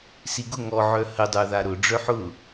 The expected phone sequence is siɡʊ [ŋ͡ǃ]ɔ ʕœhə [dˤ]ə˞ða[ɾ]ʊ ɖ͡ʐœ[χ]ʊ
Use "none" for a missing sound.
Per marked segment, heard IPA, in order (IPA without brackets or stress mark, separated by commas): ŋ, dˤ, ɾ, ħ